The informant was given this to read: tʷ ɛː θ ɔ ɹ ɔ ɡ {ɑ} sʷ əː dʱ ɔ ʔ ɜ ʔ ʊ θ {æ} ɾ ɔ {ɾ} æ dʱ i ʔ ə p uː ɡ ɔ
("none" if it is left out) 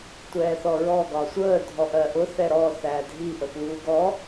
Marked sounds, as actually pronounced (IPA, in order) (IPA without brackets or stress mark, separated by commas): ɒ, ɛ, θ